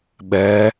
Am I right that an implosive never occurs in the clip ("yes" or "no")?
no